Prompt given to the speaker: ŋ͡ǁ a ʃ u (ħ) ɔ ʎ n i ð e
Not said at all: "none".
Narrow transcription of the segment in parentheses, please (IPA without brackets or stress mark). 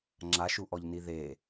ʔ